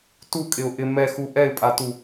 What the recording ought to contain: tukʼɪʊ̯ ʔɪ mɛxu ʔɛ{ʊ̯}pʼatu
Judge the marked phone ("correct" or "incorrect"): incorrect